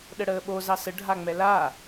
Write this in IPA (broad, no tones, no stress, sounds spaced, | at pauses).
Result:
ɗ ə ɽ əː ɓ o z ɑ s ə ɖʱ a ŋ͡m ɛ l a